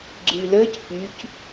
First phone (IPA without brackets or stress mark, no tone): ɡ͡ǀ